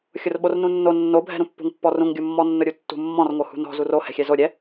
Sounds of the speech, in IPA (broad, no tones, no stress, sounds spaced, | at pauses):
xʲ ʊ r ɓ o r n ũ nː o nː o bʱ ɛ̤ ɾ ũ pː ṳ ŋ pː ɔ r ũ ŋ ɡʲ u mː ɔ nː ʊ ɾʲ u tː ṳ mː ɔ̃ r ŋ o h ṳ n ɔ̤ z u r o h ɛ̤ xʲ ɛ z o ɾʲ ɛ